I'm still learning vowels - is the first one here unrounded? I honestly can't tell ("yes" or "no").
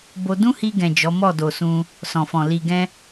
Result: no